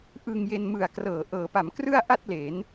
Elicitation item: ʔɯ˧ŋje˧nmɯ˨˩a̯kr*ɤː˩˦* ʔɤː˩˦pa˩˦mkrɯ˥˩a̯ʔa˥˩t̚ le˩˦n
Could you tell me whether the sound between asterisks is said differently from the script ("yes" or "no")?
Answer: no